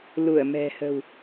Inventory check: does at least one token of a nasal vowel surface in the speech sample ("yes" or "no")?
no